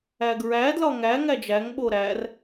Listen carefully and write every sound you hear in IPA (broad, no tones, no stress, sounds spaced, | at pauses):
æ ɡ ɹ æ d l ɒ ŋ æ ŋ æ d͡ʒ æ ŋ ɓ o ɾ æ r